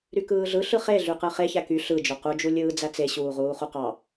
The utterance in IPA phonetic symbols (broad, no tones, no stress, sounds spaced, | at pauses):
ɾ y k ɯː ɮ ɯ ɬ ɯ χ e ɮ y q ɯ χ e ç æ k y ɬ ɯ d͡ʒ o q u d͡ʒ u lʲ ɯː d͡z æ t͡s e ɕ uː ʁ uː χ u q ɑ